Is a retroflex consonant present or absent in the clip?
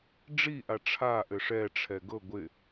present